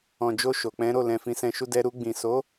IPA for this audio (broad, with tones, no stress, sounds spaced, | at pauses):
ɔ̃˨ d͡ʒ o˧ ʃ o˨ k͡p ɛ̃˨˦ ɾ o˦˨ l ɛ̃˨ f ĩ˨˦ s ɛ̃˧ ʃ u˦ d ɛ˧ ɾ u˧ ɡ͡b ĩ˨ s o˨˦